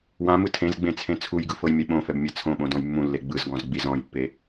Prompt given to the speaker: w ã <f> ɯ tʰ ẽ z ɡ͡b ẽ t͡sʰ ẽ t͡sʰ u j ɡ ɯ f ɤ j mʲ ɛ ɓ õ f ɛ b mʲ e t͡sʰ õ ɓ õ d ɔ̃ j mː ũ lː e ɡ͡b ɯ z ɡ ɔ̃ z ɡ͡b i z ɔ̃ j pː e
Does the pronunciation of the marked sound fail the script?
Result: yes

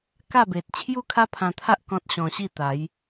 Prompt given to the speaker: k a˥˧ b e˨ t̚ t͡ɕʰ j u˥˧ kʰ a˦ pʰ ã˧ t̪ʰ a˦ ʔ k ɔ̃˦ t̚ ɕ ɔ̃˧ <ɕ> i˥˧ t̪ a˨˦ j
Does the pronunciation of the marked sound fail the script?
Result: no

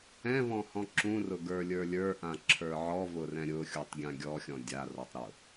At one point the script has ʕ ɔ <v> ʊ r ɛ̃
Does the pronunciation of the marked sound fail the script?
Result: no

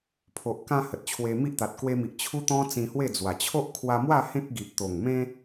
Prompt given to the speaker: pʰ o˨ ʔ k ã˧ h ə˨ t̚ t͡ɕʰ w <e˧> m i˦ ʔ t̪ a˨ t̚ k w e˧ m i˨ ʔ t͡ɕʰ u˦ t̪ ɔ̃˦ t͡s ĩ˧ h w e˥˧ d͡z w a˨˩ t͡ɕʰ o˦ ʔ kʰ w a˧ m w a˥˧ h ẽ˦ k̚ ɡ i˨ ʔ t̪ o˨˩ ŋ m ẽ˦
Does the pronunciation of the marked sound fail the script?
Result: no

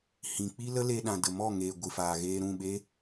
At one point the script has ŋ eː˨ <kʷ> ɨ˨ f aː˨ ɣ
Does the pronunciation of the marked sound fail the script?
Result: yes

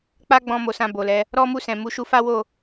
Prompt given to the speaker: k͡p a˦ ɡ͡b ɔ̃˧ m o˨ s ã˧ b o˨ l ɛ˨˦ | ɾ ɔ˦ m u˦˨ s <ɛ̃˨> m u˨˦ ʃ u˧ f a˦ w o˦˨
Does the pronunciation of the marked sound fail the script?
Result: no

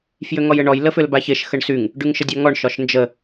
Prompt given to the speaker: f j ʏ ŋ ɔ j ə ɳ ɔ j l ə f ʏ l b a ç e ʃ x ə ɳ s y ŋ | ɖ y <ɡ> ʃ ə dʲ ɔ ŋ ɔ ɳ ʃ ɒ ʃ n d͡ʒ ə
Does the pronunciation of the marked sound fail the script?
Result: yes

